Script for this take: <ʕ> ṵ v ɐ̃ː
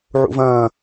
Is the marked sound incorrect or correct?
correct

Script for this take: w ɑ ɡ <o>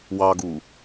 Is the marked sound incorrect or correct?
incorrect: u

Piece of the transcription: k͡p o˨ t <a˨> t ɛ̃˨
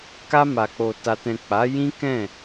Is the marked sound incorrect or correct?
correct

